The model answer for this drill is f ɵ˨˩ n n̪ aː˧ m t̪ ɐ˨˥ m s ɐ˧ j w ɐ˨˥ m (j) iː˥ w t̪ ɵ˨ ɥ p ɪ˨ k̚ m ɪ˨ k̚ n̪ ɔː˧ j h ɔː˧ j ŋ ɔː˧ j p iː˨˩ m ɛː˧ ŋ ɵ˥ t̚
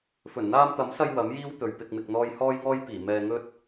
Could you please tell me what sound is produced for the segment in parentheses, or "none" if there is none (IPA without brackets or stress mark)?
j